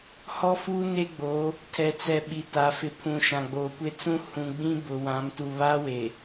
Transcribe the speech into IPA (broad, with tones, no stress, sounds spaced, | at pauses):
h ɔ˦ f uː˦ n e˦ ɡ͡b o˨˦ | tʰ ɛ˨ t͡s ɛ˨ ɓ i˨ t a˨ f ɪ˨ pʰ ũ˨ ʃ ã˨ ɡ͡b oː˨ kʷ e˦ t͡s ũ˦ h ũ˨ ɡ͡b ĩ˦ b ʊ˨ w ã˨˦ m t u˨ β aː˦ w e˨